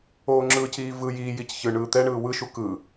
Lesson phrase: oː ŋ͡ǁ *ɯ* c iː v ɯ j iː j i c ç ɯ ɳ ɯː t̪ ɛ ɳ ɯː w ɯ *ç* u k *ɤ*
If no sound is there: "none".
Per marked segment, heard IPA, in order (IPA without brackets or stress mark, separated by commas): ɯ, ʃ, ɯ